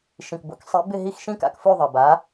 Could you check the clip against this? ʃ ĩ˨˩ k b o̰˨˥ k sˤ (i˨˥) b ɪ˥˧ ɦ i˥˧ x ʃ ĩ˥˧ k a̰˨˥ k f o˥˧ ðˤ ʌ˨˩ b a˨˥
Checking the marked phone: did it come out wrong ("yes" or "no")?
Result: no